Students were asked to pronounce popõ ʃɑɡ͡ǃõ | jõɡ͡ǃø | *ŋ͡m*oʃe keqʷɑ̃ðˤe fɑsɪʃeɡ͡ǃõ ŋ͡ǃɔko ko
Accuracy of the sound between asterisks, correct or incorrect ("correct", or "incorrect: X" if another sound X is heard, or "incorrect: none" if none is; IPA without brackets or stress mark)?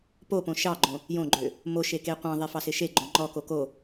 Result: incorrect: m